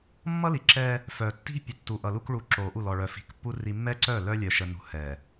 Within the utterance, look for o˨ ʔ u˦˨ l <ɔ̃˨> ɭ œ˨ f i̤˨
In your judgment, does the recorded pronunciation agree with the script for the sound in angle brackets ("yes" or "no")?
no